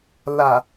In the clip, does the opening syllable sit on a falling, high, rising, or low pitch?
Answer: low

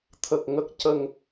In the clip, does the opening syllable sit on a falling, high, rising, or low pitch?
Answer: low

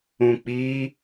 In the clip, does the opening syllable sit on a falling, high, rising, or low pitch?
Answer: low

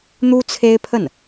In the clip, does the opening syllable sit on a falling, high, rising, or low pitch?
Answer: high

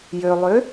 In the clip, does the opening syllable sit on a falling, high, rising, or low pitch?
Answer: low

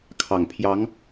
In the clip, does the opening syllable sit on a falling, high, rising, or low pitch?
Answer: low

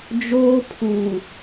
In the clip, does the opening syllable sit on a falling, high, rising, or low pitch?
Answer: high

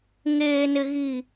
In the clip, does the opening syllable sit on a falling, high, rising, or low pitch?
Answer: low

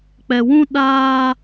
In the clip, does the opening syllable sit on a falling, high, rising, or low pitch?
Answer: low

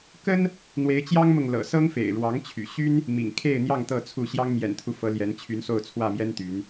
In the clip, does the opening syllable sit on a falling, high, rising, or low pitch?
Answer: high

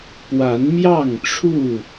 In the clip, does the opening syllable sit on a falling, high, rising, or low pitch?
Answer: rising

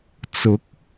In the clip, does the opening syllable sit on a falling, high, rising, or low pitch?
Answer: rising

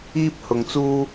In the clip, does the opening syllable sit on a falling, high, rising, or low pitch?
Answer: high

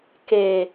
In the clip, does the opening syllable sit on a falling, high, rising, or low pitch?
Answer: low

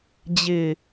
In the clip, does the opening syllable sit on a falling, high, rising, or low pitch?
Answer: low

